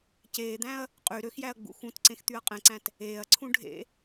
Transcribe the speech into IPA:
ceːd̪æ̃ɐ̯ | qʼy ɾøxjæɐ̯ɡ͡bṵ xũtǀẽxt̪yɐ̯ qʼẽǀæ̃t | eːɐ̯ǀʰũ ɖʱḛ

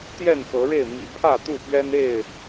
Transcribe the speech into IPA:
t̪jɛ˥˨nxɤ˨˦ɻe˥˨ɪ̯ mḭ˨˩pʰä˥˨t̪u˥˨pɥɛ˦n e˥˨ɪ̯

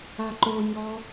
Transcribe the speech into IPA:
aǃoɲɔ

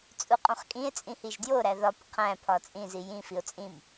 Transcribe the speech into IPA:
t͡sʼuqʼõχkʼĩe̯t͡sʼĩ hiʒdjoɾæ ðɒp qʰæ̃ pʰɒt͡sʼĩzi jĩfio̯ t͡sʼĩm

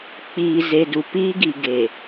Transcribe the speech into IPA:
k͡piː˨ ze˨du˨piː˦ɡi˨ ɡe˨

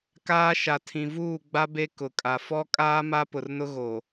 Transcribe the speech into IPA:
kaː˦ʃa˨tʰĩ˨ vuː˦˨ɡ͡ba˦ be˦kʊ˨kʼa˨ fɔ˦kʼaː˦ ma˦pʊ˨rnʊ˦ɣo˨

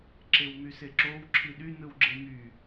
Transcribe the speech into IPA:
ǁewmyseǁow ǁʰiɗy nɯwɡ͡ǁemy

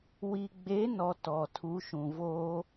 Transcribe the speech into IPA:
wi˨ɡ͡be˨˦nɔ˨ tɔ˨tʰu˨˦ʃũ˨ voː˦

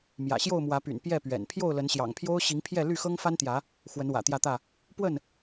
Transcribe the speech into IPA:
mjä̰˨˩ɕjo˥˨ʊ̯mwä˨˦py̰˨˩n pjɛ˥˨pɥɛ̰˨˩n pʰjo˥˨ʊ̯lə˨˦nɕjɑ̰˨˩ŋpʰjo˦ʊ̯ ɕi˨˦ŋpʰjɛ˥˨ ly˥˨xɤ˦ŋfa˦nt̪jä˨˦ | xwə˨˦nwä̰˨˩ t̪jä˥˨t̪ä˥˨ | pwə˥˨n

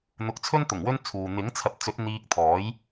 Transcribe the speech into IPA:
n̪ʊ˨˥k̚t͡sʰɵ˥nt̪ʊ˨˩ŋ wɵ˥nt͡sʰuː˨ n̪ɪ˨˥ŋ t͡sʰɐ˨˥p̚t͡sɵ˨˥t̚ n̪iː˧k̚t̪ʰɔː˨˥j

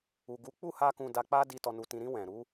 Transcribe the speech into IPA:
u˨ɡu˨˦k͡pu˦˨ha˧ kũ˧da˧k͡pa˦ di˧ tɔ˨nu˨tĩ˨ɾĩ˧ wɛ̃˨ɾu˨˦

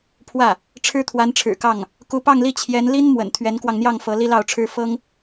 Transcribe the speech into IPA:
pʰwä˥˩ | ʈ͡ʂʰɻ̩˥t̪ʰwa˧˥nʈ͡ʂʰɻ̩˨˩kɑ˥˩ŋ | ku˧˥pɑ˥˧ŋli˥˩ t͡ɕʰjɛ˧˥nli˥n mwə̰˨˩nt̪ʰɥɛ˧˥nkwɑ˧ŋn̪jɑ˥˩ŋ fɤ˧˥li˥lɑ˥˩ʊ̯ʈ͡ʂʰɻ̩˥ fɤ˥ŋ

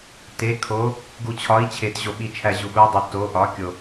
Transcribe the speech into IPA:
te˧˥kʰo˧˥ | ɡu˧t͡ɕʰɒ˧˥i̯ t͡ɕʰe˧tʑo˧ɓi˧t͡ʃʰæ˧ ʑu˧ɓu˧˥dˤe˧ to˧˥ ʔɒ˧˥kʲo˧

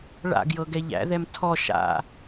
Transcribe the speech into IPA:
ɭa̰ɡjɤɡɛ ʎæ̰ðɛm tʰɔ ʃa̰

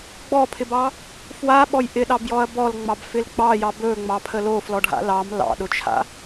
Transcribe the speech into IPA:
ɡ͡bɔpʰɪbɑ | fwaɓɔj ʔɪɗɑbjɔɐ̯ bɔlŋ͡mɑbfɪl ɡ͡bɑjɑ bɵŋ͡mɑpʰə loflɔɖʱa̰ lɑm lɑ̰ɗʊt͡ʃʰa̰

